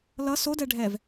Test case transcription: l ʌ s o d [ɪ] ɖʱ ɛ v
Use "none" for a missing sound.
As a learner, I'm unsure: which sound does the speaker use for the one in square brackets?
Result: ɛ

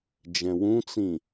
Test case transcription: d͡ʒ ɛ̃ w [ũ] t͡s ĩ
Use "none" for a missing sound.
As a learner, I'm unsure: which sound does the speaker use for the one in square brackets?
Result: ũ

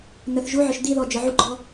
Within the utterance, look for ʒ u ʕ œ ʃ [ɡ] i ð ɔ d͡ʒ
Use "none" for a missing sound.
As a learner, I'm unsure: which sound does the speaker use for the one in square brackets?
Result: d̪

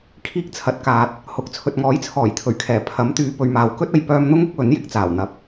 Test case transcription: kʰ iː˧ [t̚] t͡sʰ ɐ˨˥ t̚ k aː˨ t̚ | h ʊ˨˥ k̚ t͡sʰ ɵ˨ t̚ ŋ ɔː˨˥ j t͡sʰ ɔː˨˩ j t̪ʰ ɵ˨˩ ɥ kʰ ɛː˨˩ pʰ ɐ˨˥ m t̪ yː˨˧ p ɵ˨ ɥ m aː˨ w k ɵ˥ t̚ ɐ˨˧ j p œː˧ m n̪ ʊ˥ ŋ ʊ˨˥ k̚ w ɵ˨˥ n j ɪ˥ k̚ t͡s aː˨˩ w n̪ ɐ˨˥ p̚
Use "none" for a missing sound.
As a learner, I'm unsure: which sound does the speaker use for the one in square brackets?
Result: k̚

